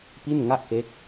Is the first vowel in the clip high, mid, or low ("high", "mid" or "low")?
high